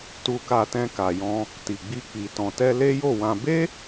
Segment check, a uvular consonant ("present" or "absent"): absent